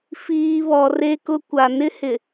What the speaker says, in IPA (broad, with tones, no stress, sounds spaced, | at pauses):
f iː˨ β ɔ˨ r e˨ k ʊ˨ kʷ a˨ n ɪ˦ h ɪ˨